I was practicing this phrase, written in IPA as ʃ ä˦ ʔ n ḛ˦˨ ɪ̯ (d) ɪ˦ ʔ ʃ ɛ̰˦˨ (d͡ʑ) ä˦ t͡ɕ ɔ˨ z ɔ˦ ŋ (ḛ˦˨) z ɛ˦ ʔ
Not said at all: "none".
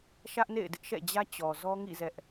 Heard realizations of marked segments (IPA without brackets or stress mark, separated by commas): d, d͡ʑ, ḭ˦˨